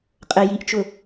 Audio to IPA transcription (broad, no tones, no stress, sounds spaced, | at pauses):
qʼ ə j i ʔ t͡ʃ ʊ